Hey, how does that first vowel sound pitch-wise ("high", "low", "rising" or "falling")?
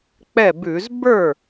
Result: falling